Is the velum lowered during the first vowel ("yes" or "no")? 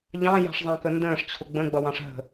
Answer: yes